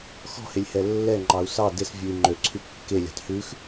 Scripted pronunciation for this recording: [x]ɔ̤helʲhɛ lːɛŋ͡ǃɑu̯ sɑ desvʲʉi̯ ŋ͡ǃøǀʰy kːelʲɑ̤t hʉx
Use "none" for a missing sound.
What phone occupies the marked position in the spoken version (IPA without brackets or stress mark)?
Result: x